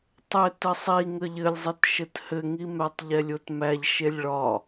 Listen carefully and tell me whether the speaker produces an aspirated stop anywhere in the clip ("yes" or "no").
no